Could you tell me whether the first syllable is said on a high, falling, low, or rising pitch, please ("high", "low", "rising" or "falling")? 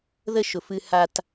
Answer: high